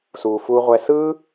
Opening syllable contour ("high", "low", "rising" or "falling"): low